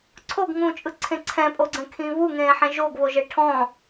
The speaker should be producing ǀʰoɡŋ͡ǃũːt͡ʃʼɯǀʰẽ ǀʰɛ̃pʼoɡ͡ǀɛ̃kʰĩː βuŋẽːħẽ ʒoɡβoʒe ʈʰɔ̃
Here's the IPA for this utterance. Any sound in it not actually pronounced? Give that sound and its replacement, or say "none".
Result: ŋ͡ǃ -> ŋ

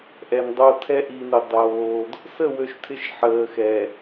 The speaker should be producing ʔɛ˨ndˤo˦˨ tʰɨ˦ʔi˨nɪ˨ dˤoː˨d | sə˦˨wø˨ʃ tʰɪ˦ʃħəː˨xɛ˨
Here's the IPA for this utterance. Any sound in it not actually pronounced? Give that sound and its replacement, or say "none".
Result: ɨ˦ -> ɛ˦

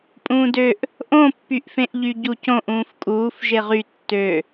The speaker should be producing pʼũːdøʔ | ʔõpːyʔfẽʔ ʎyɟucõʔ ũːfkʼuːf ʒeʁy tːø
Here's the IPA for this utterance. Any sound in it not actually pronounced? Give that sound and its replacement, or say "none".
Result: none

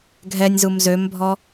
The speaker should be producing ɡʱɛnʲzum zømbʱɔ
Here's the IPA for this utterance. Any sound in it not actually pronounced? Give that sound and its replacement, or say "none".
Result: none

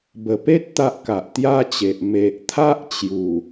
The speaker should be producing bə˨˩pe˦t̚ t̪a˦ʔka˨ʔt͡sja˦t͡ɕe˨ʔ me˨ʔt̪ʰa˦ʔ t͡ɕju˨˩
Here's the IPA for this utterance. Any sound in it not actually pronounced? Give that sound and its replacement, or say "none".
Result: t͡s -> t̪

